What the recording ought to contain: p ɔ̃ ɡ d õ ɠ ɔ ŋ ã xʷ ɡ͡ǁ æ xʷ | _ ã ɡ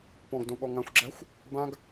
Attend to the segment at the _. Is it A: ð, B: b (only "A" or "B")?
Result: B